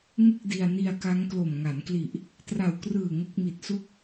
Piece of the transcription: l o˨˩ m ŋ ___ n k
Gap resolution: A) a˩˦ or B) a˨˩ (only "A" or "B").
A